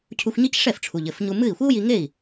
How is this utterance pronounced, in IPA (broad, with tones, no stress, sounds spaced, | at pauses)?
cʰ u˧ xʷ ɲ i˥ c ʂ ɛ˥˩ f ʈ͡ʂʰ u˩ ʎ ɘ˥˩ f ɲ u˧ m ɨ˥˩ i̯ xʷ i˥ u̯ j i˧ ŋ e˥˩ i̯